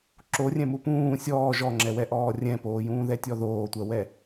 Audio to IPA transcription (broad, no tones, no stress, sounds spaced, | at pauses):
ǁ o rʲ ɛ̃ m u p ũː sʲ ɔː ʒ ɔ ŋ͡ǁ ɛ w ɛ ʔ ɔː rʲ ɛ̃ p oː j ũː ð ɛ tʲ ɔ ð oː tʷ ɜ w ɛ